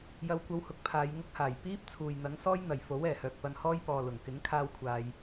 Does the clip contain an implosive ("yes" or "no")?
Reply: no